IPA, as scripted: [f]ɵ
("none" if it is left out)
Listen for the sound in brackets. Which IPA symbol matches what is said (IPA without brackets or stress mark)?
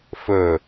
f